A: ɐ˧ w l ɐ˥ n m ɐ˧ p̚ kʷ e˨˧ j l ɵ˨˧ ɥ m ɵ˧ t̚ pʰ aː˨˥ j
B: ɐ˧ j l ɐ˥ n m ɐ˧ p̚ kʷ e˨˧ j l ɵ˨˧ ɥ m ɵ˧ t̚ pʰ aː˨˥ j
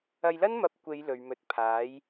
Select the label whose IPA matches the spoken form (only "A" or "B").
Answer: B